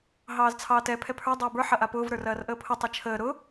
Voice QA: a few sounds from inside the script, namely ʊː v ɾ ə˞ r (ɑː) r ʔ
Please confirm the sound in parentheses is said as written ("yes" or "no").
no